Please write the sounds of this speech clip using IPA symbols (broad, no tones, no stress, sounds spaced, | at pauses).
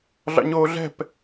ɮ ɑ̰ ɲ oː ɮ ɛ̤ p